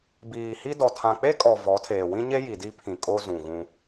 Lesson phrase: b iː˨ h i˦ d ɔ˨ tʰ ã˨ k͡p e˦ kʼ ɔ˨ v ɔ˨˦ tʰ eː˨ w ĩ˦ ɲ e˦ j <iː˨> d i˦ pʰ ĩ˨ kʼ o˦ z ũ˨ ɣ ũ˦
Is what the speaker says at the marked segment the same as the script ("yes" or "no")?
no